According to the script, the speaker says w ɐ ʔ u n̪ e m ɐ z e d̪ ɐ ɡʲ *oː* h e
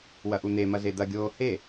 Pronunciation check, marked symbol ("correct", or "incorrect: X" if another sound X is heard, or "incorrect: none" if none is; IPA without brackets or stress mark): correct